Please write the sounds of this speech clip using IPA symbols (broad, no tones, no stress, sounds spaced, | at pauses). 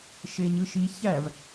ʃ e ɲ ɯ ʃ i ç æ v